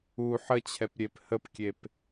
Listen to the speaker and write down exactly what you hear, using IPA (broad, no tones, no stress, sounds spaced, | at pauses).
u ħ ə t͡ɕʰ ɛ p ɾʲ e p h ə p kʲ e p